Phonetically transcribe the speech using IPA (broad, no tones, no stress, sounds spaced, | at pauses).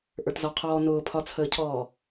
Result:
ʔ ə˞ t z ɒ qʰ ɔː n ʊː pʰ ɒ t͡sʰ əː cʰ ɔː